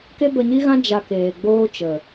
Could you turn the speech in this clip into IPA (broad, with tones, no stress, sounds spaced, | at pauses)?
k e˦ b ə˧ ɲ i˦ ɣ ã˦ d͡ʒ a˧ k eː˨ ɡ͡b oː˦ t͡ʃ ə˨